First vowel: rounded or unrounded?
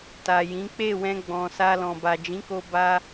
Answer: unrounded